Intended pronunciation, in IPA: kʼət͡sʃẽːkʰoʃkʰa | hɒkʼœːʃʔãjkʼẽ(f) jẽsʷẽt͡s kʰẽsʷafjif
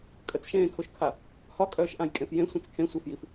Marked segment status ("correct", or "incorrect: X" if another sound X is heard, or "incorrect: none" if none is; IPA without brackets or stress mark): correct